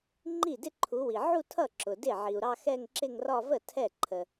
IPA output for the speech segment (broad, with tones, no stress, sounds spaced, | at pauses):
ŋ͡ǃ i˥˩ d ɪ˥˧ ǃʰ u˨˦ w i˨ ʕ u˥˧ tʰ ʌ˥˩ ǁ ʊ˨ d ɪ˥˩ ʕ i˨ u̯ ɾ ɑ˥˧ x ɛ˥˧ ŋ ǁ ɪ˥˧ ŋ r ɒ˥˧ v ə˥˩ tʰ ɛ˥˩ ǃʰ ə˨